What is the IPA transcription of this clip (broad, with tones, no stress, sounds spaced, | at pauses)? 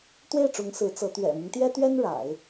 t̪ w e˥˩ ɪ̯ ʈ͡ʂ ʊ˧˥ ŋ s ɹ̩˧˥ t͡s ɤ˧˥ t̪ ɥ ɛ̰˨˩ m i˦ ŋ t̪ j ɛ˥ t̪ ɥ ɛ˥ n ɻ a̰˨˩˦ ɪ̯